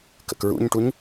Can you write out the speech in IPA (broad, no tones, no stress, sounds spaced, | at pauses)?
k ə̰ k ɹ ṵ ɲ ʈ u ɲ